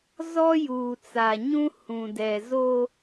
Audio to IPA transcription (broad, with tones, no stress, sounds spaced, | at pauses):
z ɔ˦ j uː˨ t͡s a˨ ɲ ũ˦ h ũ˨ d ɛ˨ z o˦